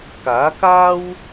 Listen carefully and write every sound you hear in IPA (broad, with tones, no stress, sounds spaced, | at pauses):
k aː˨˥ k aː˥ w